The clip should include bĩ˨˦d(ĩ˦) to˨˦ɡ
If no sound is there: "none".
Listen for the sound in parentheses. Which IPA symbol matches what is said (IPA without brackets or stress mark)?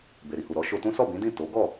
ĩ˦˨